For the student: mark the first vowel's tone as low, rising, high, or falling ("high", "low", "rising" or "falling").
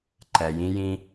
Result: low